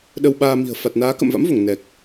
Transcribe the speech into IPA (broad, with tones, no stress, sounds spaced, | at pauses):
ɗ ə˧ w ɓ aː˧ m i̤˨˩ ə̯ f a˨˩ t̚ n aː˨˦ k ə̰˧˨ m v a̰˧˥ m v o˧˩ ŋ n ɛ˨˩ k̚